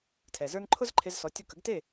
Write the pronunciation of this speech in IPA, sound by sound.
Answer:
tʰ ɛ˩ z ə˞˥ n ǃʰ ʊ˥ z ǃʰ e˧ z s ɔ˩˥ tʲ ʊ˧ k ə˩˥ ɡ t e˥˩

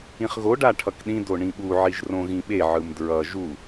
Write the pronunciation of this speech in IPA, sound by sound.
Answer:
ĩ χ ɣ o ɖ a ʈʰ ʌ k ɗ ĩ d o ɳ ĩ ɓ u ʕ i ʒ r õ ɣ ĩ ɓ e ʕ ɯ m d ɹ ʌ ʒ u

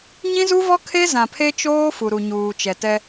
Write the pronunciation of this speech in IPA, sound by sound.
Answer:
ɲ ĩ˦ z u˦ v ɔ˦ kʰ e˦ z ã˨ pʰ e˦ t͡ʃ oː˦ f u˨ ɾ u˨ ɲ uː˨ t͡ʃ ɛ˨ t ɛ˦

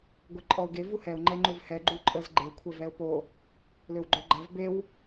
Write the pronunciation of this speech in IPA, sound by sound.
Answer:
ɡʷ ɛ ǃʼ ɔ ʊ̯ ɡ e v u h ɛ ʊ̯ ŋ͡ǃ ɛ ŋ͡ǃ ø v h ɛ ɡ͡ǃ u ǃʼ ə z ɡ͡ǃ e kʷʰ ɛ v ɛ ʊ̯ p o | l ø w ɡ͡ǃ œ ɡ͡ǃ a v b e w

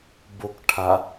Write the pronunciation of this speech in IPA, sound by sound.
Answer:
b o k ʈʰ a

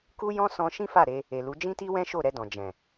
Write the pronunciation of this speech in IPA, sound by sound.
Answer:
k u˦ j ɔ̃˦ s ɔ̃˧ ʃ ĩ˦ f a˦˨ ɾ e˧ | e˨ l u˨˦ d͡ʒ ĩ˦ t i˦ w ɛ̃˦ ʃ o˦˨ ɾ ɛ˧ d ɔ̃˨ d͡ʒ ɛ̃˨

